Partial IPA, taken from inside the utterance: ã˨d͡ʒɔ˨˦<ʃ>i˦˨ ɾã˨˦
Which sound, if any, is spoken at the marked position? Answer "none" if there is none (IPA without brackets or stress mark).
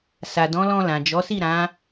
s